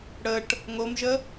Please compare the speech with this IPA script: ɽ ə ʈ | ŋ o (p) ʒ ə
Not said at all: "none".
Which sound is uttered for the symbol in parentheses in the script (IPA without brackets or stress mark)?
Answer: m